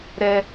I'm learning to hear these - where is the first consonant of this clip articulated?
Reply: tongue tip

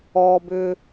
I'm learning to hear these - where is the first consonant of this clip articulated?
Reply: lips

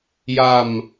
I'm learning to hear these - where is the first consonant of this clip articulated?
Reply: palate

